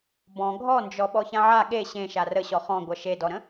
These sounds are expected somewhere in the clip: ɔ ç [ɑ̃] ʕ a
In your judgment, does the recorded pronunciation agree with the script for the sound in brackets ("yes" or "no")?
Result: no